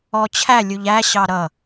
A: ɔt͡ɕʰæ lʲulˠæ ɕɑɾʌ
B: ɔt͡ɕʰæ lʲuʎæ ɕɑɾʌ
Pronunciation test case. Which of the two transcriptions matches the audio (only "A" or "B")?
B